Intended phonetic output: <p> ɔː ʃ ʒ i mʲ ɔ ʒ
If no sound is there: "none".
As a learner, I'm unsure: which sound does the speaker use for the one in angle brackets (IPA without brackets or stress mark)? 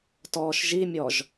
t